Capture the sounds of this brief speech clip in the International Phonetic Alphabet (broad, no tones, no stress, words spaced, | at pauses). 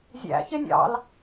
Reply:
zʲæ̰ çenʲɑ̰l